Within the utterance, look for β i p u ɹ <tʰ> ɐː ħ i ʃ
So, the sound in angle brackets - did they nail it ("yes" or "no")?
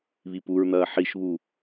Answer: no